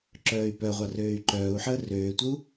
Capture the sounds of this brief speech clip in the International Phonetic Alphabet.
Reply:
ǁ œː y̯ p œ ʁʷ ɑ r øː y̯ ǃ œː u̯ ħ əː r øː tʷ ə u̯

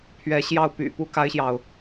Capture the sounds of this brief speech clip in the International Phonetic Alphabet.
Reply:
pʰ ɥ ɛ˧˥ ɕ j ɑ˥˩ ʊ̯ p y̰˨˩ p u˥ k a˥ ɪ̯ ɕ j ɑ˨ ʊ̯

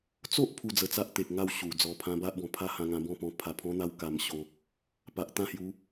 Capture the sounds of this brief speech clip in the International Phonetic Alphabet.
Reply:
t͡s o˦ ʔ pʰ u˧ d͡z ə˧ t͡s a˦ ʔ t̪ e˨ k̚ ŋ a˥˧ w ɕ u˨˩ d͡z ɔ˧ pʰ ã˦ b a˦ ʔ b ɔ̃˨˩ pʰ a˥˧ h ã˧ ŋ ã˧ b ɔ̃˥˧ p ɔ̃˧ pʰ a˧ pʰ ɔ̃˦ n̪ a˦ w k a˧ m ɕ o˧ | p a˨ ʔ t̪ ã˥˧ h j u˨˦

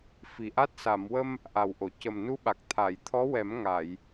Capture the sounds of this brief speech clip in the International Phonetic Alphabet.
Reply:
f i˨˩ ʔ a˦˥ t̚ s a˨˩˨ m w ə˧ m | ʔ a˨˩ w ʔ o˨˩˨ c ə˨˩ m n u˧˥ ɓ a˨˩ k̚ t̪ʰ a˨˩˨ j t̪ʰ ɔ˧˥ w ɛ˨˩˦ m ŋ a˨˩˨ j

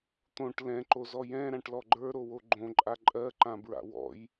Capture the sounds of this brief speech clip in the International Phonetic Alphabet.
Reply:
t̪ õ ʈ l ɛ̃ ǃ o z ɔ j ɛ̃ ɾ ã ʈ l ɔ ɡ͡ǃ ə˞ ɾ o w o ɡ͡ǃ õ ǃʼ a ǃʼ ɜ ǃ ã b ɹ a̰ w ɔ̰ j

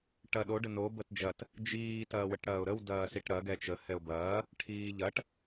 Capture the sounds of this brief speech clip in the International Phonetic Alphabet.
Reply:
ʈ ɐ ɗ o ɖ ə n o b ə t d͡ʒ ɐ t | d͡ʒ iː t ɐː w ə ʈ ɽ ɐː ʊ̯ ɾ ə w d ɐː s i ʈ ɾ ɐ ɡ ɛ t͡ʃ ə h ɛ ʊ̯ b ɐː | ʈʰ iː ʎ ɐ ʈ

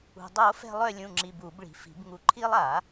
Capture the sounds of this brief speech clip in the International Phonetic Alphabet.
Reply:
ṳ˩ dˤ o˨˩˦ f ɛ̤˦˨ lˠ œ˦˨ lʲ ũ˩˧˩ ŋ͡ǁ i˩˧˩ b uː˨˩˦ b ɭ i̤˩˧˩ f i̤˨˩˦ b ŋ u˨˩˦ ǃʰ iː˦ lˠ aː˨˩˦

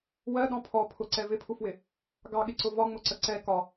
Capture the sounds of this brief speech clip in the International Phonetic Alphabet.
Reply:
w ɜ ɗ ɔ̃ pʰ ɔ pʰ ʊ ǀ ɛ v ɪ pʰ u f w ɪ | ɡ ɑ ɠ ɪ ǀ ʊ v ɒ ŋ͡m ʊ ǀ ə ǀ ɛ k ɒ

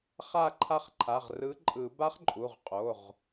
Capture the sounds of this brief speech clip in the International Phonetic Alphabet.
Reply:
χ a˦˨ ǃʰ a˦˨ χ ǃʰ a˩˧˩ ʁ r ɯ˨˥ ǃʼ ɯ˨˩˦ b a˦˥ χ ǃʼ u˩˧˩ ʁ qʼ o˩˧˩ ʁ

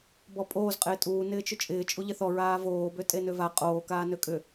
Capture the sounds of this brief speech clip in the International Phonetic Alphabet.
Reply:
b ɔ pʼ oː z qʼ ɪː tʼ uː n ɪː t͡ʃ ʏ t͡ʃʼ ɪː t͡ʃʼ u ʎ ɪ θ ɔ ɹ aː v oː b ø tʼ e n ø v a qʼ oː k aː n ø kʼ ʏ

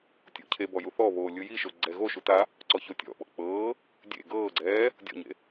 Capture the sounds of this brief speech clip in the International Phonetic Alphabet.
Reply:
tʲ o̰ cʰ e b ɔ j u θ ɔ β oː lʲ ɯ j i ʃ o ɡ͡ǀ ɛ ɣ o ʃ u t a | ǀ ɔ ç o tʲ ɔ̰ ɓ ɔ̰ k͡p ɤː | dʲ ḛ ɡ ɤː ɡ͡ǀ ɛː | dʲ ɔ̰ ɲ ḛ

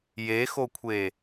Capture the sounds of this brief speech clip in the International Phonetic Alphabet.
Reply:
j e x o kʷʰ e

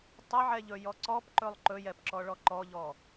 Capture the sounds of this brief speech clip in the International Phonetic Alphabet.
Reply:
tˤ ɛ ʕ ɛ ʎ ɵ j ɔ ǀ ɔ p ǃ ɵ lˠ ǃ ɵ j ɛ p ǁ ɔ ɭ ɔ ǃ ɔ ʎ ɔ

